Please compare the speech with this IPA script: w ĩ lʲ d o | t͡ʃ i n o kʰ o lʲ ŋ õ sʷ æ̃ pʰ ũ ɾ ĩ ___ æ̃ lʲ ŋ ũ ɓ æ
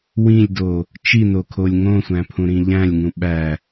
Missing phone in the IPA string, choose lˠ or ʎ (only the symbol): ʎ